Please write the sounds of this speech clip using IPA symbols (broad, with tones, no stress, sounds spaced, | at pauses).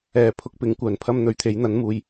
ɛː˨˧ pʰ ʊ˧ k̚ p ɪ˨˥ ŋ kʷ œː˨ n pʰ ɐ˥ m n̪ ɵ˨˥ ɥ t̪ʰ e˨˥ j n̪ ɐ˨˥ n m uː˨ j